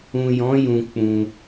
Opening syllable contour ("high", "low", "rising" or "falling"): low